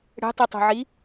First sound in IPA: ɽ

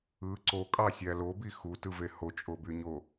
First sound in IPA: ɯ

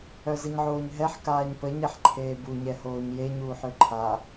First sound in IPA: œ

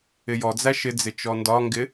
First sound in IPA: ɪ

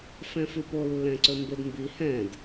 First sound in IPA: f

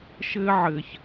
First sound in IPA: ʃ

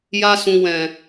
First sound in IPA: j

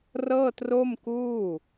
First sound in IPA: r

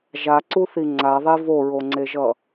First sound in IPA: ʒ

